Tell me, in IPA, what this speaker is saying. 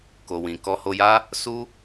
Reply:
k o˨ w ĩ˨ k ɔ˧ h o˧ j a˦ | s u˦

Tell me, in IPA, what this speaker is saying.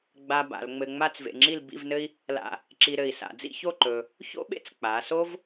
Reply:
ɡ͡b a˧ b a̰˩˧ l ŋ͡m ɘ˧ ŋ͡m a˥˧ t͡s v ḛ˧ ŋ͡ǁ i˥˧ l b ḭ˥˧ v n ɘ˥ i̯ | l a̰˧˩ | ǁ i˧ ɾ ɘ˧˩ i̯ s a̰˩˧ d͡z ḭ˥˧ ç o˥˧ ǃ ɵ˧ | ç o̰˥ ɓ ḛ˥ t͡s k͡p a˩˧ s o˥ v

